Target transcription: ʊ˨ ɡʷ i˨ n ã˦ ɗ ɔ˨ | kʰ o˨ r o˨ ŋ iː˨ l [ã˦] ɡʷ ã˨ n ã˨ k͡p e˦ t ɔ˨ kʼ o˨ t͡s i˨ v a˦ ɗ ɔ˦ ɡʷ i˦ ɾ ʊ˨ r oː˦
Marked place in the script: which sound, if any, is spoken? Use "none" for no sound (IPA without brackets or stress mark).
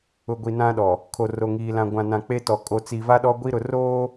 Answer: ã˨